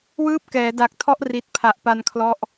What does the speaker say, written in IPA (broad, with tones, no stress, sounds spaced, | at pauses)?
w ɯː˦˥ p̚ k ɛː˩˦ d a˨˩ k̚ tʰ ɔ˦˥ ʔ r i˨˩ t̚ pʰ a˨˩ ʔ p a˧ n kʰ l ɔ˦˥ ʔ